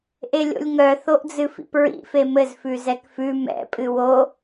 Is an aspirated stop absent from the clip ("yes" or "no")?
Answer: yes